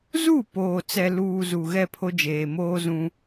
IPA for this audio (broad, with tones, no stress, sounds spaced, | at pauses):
z u˦˨ p oː˨ t͡s ɛ˨ l uː˨ z u˨ ɣ ɛ˦˨ pʰ o˦ d͡ʒ eː˨ m oː˦ z ũ˦